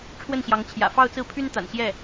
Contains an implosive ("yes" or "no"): no